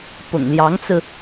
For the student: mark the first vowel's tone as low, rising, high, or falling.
low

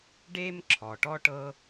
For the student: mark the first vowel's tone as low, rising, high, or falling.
high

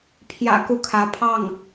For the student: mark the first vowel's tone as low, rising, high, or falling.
low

